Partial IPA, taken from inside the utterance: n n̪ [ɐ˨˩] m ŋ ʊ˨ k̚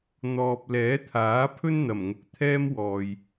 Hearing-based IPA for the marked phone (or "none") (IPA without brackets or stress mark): ɐ˨˩